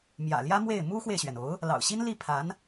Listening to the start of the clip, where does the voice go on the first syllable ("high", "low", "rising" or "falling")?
low